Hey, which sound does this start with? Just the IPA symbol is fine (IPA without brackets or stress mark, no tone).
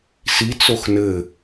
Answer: s